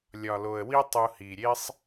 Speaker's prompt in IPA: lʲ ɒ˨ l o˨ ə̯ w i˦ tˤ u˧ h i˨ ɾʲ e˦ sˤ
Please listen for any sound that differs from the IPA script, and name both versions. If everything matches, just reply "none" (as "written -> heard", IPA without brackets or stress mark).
none